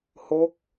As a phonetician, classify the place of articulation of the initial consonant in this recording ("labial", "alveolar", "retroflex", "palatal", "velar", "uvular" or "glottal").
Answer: glottal